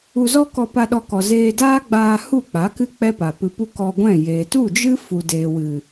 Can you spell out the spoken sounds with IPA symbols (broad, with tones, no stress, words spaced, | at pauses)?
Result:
u˧zɔ˦kɔ˧pa˧ ɗɔ˧kɔ˨ zeː˧daː˦ɡ͡baː˧ hu˦˨k͡pa˨˦kɨ˦ k͡pɛ˦pa˨pɨ˧ pu˦kɔ˧ɡʷɛ̃˦˨jeː˨ tu˦˨d͡ʒɨ˦ fu˨deː˨wɨ˨